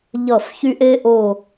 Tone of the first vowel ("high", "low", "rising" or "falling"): falling